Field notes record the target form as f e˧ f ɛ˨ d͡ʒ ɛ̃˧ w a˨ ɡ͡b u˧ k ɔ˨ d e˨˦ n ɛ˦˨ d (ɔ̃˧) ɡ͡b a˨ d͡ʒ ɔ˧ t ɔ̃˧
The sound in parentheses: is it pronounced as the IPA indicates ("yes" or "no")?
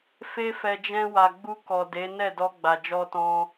no